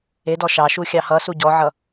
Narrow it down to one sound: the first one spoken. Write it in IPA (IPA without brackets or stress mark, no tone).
e